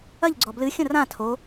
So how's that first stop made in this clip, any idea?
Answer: click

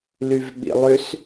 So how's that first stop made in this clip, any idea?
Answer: implosive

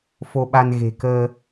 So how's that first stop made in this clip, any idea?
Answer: implosive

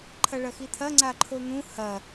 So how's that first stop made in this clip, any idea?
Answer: click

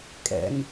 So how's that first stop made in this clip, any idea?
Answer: ejective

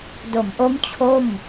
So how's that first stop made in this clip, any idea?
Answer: plain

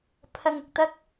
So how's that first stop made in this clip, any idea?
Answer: aspirated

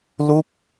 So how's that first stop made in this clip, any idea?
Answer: plain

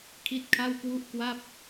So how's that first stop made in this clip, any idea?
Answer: aspirated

